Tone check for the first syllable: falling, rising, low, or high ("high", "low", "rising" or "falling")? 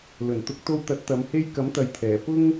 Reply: low